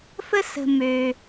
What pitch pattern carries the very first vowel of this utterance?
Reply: high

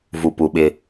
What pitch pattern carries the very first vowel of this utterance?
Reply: low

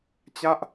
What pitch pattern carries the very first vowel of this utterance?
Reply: falling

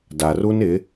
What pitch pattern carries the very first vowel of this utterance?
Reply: low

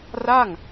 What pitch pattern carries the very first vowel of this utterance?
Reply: falling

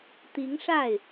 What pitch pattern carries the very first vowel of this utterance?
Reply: rising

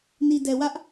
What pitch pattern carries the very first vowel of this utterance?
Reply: low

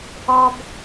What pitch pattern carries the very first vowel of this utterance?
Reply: high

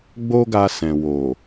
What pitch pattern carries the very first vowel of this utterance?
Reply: high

